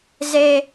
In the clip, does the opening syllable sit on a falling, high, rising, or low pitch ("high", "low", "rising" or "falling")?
high